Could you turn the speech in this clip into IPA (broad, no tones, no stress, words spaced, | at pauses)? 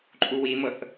ǃʼuwimɤθ